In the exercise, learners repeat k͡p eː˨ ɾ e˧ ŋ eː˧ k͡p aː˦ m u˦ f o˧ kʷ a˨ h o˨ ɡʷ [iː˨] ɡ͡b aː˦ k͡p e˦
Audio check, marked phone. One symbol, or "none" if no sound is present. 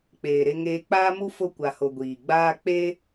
iː˨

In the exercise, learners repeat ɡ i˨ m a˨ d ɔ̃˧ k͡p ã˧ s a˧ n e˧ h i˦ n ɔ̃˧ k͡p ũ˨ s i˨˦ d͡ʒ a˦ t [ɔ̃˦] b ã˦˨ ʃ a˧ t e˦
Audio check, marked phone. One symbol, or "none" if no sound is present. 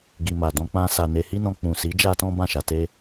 ɔ̃˦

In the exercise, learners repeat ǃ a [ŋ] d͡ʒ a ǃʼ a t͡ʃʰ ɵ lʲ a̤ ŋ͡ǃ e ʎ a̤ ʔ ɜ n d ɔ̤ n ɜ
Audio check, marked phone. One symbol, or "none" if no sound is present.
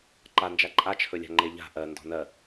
n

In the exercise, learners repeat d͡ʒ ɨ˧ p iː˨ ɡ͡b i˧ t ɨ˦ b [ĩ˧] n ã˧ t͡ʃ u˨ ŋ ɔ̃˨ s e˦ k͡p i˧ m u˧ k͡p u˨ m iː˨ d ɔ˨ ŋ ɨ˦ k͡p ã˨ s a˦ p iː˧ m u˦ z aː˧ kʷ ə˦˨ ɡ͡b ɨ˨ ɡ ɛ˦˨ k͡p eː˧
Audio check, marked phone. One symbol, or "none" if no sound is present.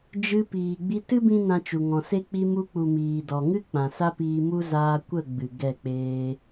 ĩ˦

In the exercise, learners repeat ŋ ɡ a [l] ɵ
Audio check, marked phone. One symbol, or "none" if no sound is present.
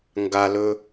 l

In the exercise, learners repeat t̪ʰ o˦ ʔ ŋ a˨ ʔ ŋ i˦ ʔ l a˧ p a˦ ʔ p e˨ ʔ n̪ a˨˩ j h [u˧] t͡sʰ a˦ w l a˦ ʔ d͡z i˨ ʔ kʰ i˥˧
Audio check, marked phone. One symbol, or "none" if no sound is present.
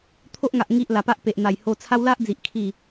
o˧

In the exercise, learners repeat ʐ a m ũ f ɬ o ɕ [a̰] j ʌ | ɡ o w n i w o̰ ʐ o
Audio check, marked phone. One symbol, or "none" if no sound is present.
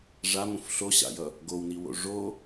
a̰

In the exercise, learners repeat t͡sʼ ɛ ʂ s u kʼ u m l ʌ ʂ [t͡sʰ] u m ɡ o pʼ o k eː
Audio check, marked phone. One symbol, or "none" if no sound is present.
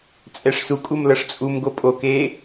t͡sʼ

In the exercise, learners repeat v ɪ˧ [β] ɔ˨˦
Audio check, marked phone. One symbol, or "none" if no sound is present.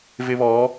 β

